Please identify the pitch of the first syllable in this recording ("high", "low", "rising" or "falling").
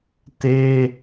high